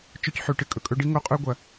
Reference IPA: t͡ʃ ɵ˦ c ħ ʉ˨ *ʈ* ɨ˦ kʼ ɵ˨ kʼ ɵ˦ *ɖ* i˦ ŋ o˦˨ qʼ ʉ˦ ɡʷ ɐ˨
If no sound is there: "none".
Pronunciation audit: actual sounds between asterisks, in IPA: ʈ, ɖ

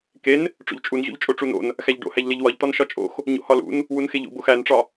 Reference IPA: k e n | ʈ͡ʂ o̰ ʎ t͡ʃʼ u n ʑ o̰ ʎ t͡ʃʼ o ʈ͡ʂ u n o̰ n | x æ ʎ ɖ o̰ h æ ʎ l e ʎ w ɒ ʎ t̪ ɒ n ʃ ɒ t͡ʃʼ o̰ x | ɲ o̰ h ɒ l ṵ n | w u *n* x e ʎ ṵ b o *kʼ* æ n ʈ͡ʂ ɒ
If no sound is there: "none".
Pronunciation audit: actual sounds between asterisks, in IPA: n, x

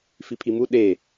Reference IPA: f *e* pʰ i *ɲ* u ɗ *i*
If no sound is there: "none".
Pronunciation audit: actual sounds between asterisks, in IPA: i, m, e

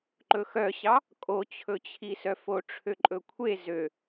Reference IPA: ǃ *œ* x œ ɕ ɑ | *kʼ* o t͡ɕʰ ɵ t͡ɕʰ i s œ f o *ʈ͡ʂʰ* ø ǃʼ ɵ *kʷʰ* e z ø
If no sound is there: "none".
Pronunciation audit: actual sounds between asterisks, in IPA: ɵ, kʼ, ʈ͡ʂʰ, kʷʰ

